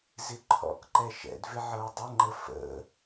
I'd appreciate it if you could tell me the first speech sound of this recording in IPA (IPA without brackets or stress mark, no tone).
z